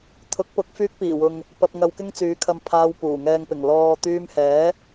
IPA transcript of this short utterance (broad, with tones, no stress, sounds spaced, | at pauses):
t̪ʰ ʊ˨˥ k̚ p ʊ˨˥ k̚ f yː˧ k̚ p iː˨˩ w ʊ˨ ŋ | p ɐ˧ p̚ ŋ ɐ˧ w k ɪ˥ ŋ t͡s yː˨˥ kʰ ɐ˧ m pʰ aː˧ w p uː˨˩ ŋ ɛː˨ ŋ p ɪ˨˩ ŋ l ɔː˨ t̪ yː˧ m h ɛː˨˥